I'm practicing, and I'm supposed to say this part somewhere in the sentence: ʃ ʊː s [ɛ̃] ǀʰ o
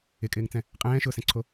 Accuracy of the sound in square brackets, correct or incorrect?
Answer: correct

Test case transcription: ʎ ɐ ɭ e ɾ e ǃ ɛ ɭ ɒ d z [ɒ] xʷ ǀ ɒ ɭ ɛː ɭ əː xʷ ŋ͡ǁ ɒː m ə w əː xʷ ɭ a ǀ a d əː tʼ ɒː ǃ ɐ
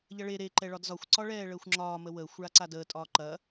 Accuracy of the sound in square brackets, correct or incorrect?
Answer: correct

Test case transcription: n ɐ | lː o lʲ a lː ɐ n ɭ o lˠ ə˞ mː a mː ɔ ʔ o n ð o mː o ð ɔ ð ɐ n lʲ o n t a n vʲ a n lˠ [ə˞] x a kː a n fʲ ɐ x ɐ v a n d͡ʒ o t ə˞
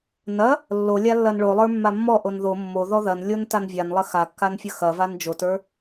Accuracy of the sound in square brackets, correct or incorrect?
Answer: incorrect: ɐ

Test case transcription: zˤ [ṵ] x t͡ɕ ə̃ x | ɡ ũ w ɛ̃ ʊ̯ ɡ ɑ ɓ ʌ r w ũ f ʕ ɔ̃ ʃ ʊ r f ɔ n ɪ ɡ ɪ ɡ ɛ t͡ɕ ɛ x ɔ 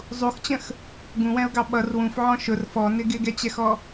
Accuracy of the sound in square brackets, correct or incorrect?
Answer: incorrect: u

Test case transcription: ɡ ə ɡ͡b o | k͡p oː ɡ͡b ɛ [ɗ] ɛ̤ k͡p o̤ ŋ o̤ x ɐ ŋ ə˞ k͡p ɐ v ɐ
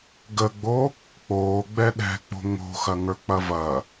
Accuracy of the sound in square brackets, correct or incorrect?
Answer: correct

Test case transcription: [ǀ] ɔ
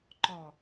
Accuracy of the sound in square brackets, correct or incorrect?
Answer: incorrect: ǃ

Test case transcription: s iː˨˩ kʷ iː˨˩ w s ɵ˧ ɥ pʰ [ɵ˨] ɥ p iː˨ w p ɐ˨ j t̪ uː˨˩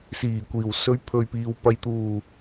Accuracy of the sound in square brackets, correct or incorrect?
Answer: correct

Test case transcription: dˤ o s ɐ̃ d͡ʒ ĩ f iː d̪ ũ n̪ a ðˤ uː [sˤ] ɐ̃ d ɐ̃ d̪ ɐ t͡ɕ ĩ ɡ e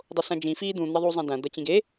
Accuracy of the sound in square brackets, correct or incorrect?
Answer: incorrect: zˤ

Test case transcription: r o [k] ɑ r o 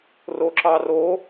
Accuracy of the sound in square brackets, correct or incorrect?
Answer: incorrect: ǁ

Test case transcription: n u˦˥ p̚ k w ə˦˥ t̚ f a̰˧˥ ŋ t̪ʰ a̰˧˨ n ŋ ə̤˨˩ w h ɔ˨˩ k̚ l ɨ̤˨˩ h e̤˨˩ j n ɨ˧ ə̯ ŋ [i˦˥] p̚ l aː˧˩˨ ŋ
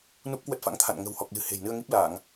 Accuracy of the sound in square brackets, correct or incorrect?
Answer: correct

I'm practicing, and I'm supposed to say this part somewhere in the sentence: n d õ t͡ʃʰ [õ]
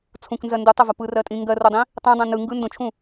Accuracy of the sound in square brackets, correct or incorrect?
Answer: incorrect: ũ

